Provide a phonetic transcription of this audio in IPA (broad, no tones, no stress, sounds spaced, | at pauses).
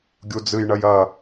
ɡʲ u d͡z ɨ j ɳ ɐ j ɐ